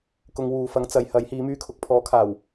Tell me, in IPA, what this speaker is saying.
k ʊ˧ ŋ w uː˨ f ɐ˨˥ ŋ t͡s ɐ˨˧ j h ɐ˨˥ j h iː˨˧ m yː˧ kʰ ʊ˨ k̚ pʰ ɔː˨˥ kʰ aː˨˩ w

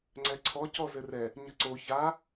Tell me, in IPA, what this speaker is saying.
ŋ͡ǀ ɛ ǀʰ ɔ c ɔ z ɘ r ɛ | ɲ ə ǀ o ç a

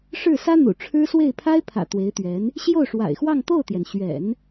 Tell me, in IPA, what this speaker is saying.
ʂ ɻ̩˥˩ s ä˥ n̪ ṵ˨˩ ʈ͡ʂʰ ɻ̩˥ s w e˥˩ ɪ̯ pʰ a˥ ɪ̯ pʰ ä̰˨˩ t̪ w e˧˥ ɪ̯ t̪ ɥ ɛ˧˥ n | ɕ j o˥˩ ʊ̯ ʂ w a̰˨˩ ɪ̯ x w ɑ˥˧ ŋ t̪ o˥˩ ʊ̯ t̪ j ɛ˩ n ɕ ɥ ɛ̰˨˩˦ n

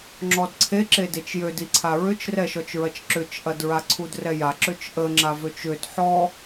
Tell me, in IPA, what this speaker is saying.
ŋ͡ǁ ɔ d ǀʰ e ǁ e d e t͡ʃ j ø d i ǀʰ a ɹ ʏ t͡ʃ r ɛ ʃ ɔ t͡ʃ ɹ ɐ t͡ʃ ǁ ʏ t͡ʃ ʔ ɐ d ɹ a ǀʰ u d r ɛ j a ǁ ø t͡ʃ ʔ ə ŋ͡ǁ a v ø t͡ʃ ʏ d ħ ɔ

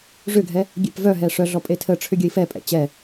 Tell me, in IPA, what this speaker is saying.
ʐ ʏ ɡʱ ɛ | ɡʲ ɛ̰ p v œ ɦ ɛ ʂ œ ɮ ɔ pʼ e tʰ ə ʈ͡ʂʰ ʏ ɡʲ ə i̯ f ɛ pʼ ɛ̰ t͡ɕ ɛ

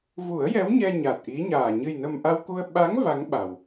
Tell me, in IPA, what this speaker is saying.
v u˨˩˦ ə̯ j ɛ˧˥ w ɲ ɛ˧ ɲ a˨˩ t̚ ʔ i˧˥ ɲ aː˨˩ ɲ ɨ˨˩ j n ə˨˩ m ʔ a˧ w k u˧ ə̯ ɓ a˧˥ ŋ v a˧˥ ŋ ɓ a˨˩˨ w

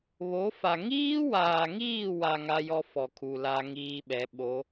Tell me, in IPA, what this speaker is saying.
β o˨˦ f a˨ ŋ iː˦ w aː˨ ŋ iː˦˨ w a˨ ŋ a˦ j ɔ˦ f ɔ˨ kʰ u˨ l a˦ ŋ iː˦ ɓ ɛ˨˦ ɓ o˨˦

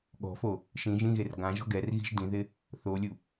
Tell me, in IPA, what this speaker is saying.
ɠ ɔ̤ f o | ʃ ĩ ʒ ĩ ɣ e r ɡ ã ʒ ɔ̤ ɡ ɛ r ɣ i̤ ʒ d ĩ ð ɪ | θ o lʲ u

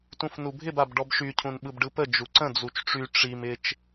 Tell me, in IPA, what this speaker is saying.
t ũ f n u bʱ ɪ b a b ɖ ɔ b ʃ y cʰ ũ n ɓ ɯ b ɖ ɯ p ə d͡ʒ u ǀ ə̃ d͡z u t͡ʃ ʈ͡ʂ y ʈ͡ʂ i m ɪ t͡ʃ

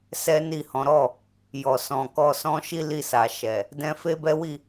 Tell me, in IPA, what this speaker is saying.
s ɛ˦ n i˦˨ h ɔ̃˨˦ ɾ ɔ˦˨ | j ɔ˨ s ɔ̃˨ k ɔ˧ s ɔ̃˦ ʃ i˦ l i˦˨ s a˨ ʃ ɛ˨ | d ɛ̃˧ f e˦ b ɛ˦ w i˦˨

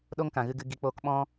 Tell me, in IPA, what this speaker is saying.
ɗ o˦ ŋ k ã˨ ɣ ɨ˧ ɡ ɨ˧ ɡ i˧ k͡p oː˦ k ɓ ɔ̃˦

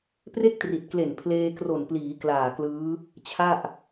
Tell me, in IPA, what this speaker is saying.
p r e˥˩ k̚ t r i˨˩ t̚ k l e˨˩ n pʰ l eː˧ k r o˨˩ n p l iː˩˦ k l aː˨˩ k l ɯː˦˥ | t͡ɕʰ a˥˩ ʔ

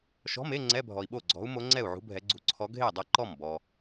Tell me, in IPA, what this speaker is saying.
ʃ ɔ̤˧˥˧ m e˧˥˧ ŋ͡ǀ ɛ˧˥˧ bʱ ɔ˨ i̯ ɓ o˥˩ ɡ͡ǀ ɔ̤˨˦ u̯ m o˨˦ ŋ͡ǀ ɛ˥˩ u̯ ʕ ṳ˨˦ bʱ ɛ˨˦ ɡ͡ǀ ṳ˨˦ ǀʰ ɔ˨˦ ɡʱ e˥˩ i̯ dˤ ʌ˥˩ ǃ ɔ˥˩ m b ɔ˨

